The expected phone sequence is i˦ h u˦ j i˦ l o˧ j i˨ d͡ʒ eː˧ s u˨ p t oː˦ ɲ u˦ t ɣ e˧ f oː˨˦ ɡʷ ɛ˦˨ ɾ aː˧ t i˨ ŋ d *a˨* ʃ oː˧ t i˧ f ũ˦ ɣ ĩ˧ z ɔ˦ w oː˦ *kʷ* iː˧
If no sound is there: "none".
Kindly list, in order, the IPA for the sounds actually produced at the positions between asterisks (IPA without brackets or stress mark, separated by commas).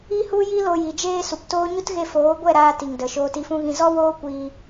ə˨, kʷ